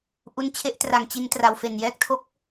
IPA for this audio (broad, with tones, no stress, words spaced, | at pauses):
ʔu˧nt͡ɕʰe˦˥ʔtra˨˩ŋ t͡ɕi˧ntra˨˩wfe˨˩n jɛː˦˥k̚tʰo˦˥k̚